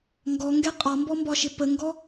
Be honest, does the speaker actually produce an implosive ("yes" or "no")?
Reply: no